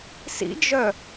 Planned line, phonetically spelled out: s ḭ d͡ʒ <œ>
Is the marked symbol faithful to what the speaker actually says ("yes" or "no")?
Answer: yes